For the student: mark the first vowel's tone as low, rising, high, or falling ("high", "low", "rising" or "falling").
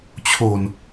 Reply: low